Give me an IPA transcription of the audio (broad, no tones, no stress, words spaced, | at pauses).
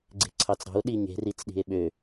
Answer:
ɡ͡ǀe̤ǀʰɑt͡sɾɑ̤o̯ ɗiɲe̤ rit͡sɗi̤e̯ɓø